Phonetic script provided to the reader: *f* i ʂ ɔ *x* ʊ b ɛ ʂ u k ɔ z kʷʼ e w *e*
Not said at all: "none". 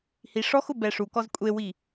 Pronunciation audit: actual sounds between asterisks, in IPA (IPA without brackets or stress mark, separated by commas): h, x, i